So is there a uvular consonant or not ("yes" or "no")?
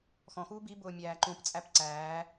no